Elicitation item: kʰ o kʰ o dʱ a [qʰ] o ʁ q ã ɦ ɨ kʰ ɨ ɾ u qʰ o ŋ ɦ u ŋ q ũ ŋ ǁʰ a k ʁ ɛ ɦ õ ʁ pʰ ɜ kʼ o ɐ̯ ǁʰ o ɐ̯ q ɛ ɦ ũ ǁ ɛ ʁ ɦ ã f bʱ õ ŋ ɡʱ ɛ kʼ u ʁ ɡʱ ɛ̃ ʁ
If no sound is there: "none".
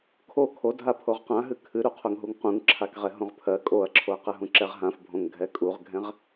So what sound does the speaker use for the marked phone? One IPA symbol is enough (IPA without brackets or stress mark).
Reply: pʰ